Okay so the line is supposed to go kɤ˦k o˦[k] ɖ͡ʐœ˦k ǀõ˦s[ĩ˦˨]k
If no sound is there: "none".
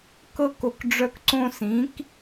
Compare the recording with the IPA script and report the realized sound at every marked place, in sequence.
k, ĩ˨˦

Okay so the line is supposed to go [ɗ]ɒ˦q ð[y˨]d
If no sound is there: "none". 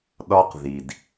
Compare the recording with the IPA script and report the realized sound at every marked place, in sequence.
ɗ, i˨

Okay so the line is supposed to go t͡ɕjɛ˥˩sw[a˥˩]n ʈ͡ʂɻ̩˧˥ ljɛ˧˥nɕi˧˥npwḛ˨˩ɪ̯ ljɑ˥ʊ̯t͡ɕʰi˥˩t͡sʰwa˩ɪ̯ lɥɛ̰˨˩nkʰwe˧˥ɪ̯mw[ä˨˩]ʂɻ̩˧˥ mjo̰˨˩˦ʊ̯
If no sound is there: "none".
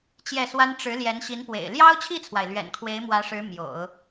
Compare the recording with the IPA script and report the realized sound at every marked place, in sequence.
a˥, ä˧˥

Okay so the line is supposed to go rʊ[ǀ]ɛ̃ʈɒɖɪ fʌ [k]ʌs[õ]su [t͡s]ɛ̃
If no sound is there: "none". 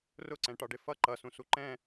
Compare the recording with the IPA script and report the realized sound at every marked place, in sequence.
ǀ, ǃ, ũ, ǃ

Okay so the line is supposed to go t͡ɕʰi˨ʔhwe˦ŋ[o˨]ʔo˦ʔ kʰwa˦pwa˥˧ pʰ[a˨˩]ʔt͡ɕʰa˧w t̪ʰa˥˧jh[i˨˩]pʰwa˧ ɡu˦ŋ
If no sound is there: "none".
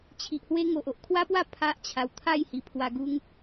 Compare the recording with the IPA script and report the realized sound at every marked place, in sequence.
o˨, a˦, i˨˩

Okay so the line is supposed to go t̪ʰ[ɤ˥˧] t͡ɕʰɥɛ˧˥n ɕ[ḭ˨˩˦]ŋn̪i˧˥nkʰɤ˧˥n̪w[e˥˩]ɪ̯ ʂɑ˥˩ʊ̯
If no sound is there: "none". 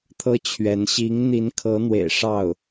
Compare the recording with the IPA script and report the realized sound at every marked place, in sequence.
ɤ˥, i˧˥, ḛ˨˩

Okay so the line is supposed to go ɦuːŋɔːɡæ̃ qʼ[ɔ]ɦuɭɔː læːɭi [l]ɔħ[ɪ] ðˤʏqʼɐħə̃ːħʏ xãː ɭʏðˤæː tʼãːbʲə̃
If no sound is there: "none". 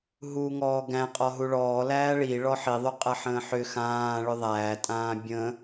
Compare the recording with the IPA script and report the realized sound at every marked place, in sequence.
ɔ, ɭ, i

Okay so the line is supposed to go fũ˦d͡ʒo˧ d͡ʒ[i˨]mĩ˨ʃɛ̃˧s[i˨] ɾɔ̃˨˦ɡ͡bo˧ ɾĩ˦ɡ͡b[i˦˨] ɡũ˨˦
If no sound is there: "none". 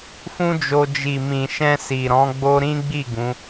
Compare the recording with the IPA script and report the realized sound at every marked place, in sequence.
i˨, i˨, i˦˨

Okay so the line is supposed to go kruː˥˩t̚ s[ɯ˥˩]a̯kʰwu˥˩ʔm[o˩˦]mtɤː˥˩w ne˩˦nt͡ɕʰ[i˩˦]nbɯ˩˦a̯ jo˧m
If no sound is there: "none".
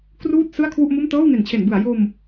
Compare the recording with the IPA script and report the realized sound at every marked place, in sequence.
ɯ˥˩, o˥˩, e˩˦

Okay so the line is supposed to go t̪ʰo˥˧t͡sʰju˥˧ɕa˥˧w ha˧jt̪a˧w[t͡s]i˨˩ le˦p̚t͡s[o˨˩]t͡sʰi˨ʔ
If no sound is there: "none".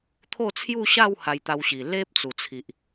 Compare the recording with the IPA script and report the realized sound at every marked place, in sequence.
ɕ, u˨˩

